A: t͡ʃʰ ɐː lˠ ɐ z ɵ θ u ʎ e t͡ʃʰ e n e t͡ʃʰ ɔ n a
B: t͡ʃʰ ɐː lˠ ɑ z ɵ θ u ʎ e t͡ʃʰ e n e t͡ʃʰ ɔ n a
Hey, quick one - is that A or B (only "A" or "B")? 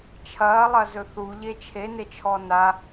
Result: A